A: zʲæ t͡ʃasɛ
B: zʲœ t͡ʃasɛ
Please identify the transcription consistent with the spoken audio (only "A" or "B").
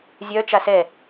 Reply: B